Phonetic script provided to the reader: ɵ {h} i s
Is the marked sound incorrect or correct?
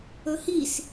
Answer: correct